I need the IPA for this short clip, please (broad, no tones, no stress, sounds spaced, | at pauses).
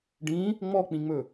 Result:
ɖ ĩ | ŋ͡m ɔ k͡p ĩ ŋ͡m ɵ